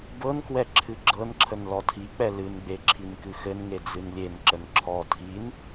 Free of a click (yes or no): no